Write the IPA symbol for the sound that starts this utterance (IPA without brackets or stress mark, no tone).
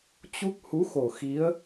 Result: t͡ɕ